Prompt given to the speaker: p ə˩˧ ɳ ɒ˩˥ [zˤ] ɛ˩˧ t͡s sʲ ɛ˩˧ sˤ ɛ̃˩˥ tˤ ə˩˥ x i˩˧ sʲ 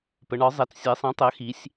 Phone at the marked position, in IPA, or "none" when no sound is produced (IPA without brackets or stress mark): zˤ